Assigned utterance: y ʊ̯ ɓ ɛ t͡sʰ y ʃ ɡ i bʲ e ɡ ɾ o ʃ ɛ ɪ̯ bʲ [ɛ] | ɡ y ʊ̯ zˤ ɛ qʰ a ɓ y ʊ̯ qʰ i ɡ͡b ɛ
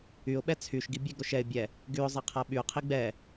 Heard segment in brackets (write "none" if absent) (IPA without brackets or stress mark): ɛ